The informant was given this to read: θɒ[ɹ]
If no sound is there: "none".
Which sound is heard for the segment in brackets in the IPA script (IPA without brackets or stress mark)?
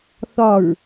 ɹ